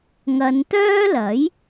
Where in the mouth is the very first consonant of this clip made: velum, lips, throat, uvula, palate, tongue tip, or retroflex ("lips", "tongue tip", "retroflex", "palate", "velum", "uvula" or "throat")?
velum